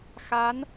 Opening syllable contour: rising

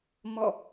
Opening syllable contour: falling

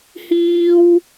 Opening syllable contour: high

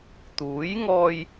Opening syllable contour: rising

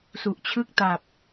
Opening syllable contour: low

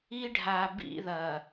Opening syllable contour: high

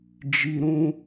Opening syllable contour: low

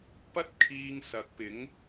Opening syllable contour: high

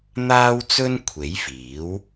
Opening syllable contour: high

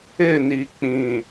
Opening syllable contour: falling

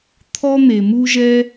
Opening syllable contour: high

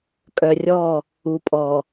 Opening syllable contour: low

